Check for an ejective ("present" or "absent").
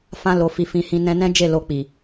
absent